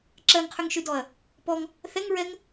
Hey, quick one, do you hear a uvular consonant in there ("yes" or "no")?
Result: yes